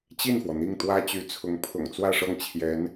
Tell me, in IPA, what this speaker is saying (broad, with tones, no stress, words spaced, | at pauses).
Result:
t͡ɕi˥˩nfwɔ˩ n̪i˥˩ŋt̪wä˥t͡ɕy˧˥t͡sʰʊ˧˥ŋ pʰʊ̰˨˩ŋt͡swä˥˧ʂɤ˥˩ŋt͡ɕʰjɛ˧˥n